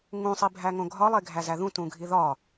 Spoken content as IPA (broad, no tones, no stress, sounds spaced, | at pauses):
ŋ ũ sˤ i bʱ æ ŋ õ ɡʱ ɒ lˠ e ɡʱ æ z æ ð ũ t ũ ɡʱ i ð ɒ